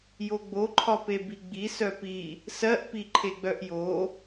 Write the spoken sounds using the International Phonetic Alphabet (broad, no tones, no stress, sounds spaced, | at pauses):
j o ɡ͡b o ǃʰ ɒ p e b i ɡ͡b i s œ p i | s ɜ ʔ p i ǃʰ e ɡ͡b œ ʔ j o